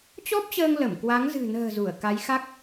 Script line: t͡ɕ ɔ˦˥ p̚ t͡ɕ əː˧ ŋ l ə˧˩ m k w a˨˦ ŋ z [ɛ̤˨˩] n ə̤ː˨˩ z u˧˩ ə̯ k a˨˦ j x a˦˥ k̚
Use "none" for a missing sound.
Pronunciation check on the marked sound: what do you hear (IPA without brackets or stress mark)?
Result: ɨ̤˨˩